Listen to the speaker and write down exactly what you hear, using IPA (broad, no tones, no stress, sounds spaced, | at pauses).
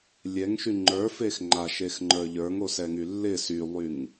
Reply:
lʲ ɛ ŋ ʃ y ŋ͡ǃ ə˞ f e x ŋ͡ǃ a ʃ e x ŋ͡ǃ ə˞ ʎ ə˞ ŋ o s ɛ ŋ y lː ɪ s y lˠ y ŋ